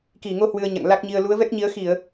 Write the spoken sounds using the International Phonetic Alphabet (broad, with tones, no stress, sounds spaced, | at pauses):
k i˧˩ ŋ o˧ h w ɨ˧ ə̯ ɲ a̰˧˨ ŋ l a˦˥ k̚ ɲ i˧ ə̯ l u˨˦ ə̯ v ɛ˦˥ k̚ ɲ i˨˦ ə̯ x i˧˩˨ ə̯